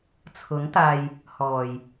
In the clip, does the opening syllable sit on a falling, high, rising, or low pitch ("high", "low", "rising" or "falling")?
rising